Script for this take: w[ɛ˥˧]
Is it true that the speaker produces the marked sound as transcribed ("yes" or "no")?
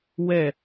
yes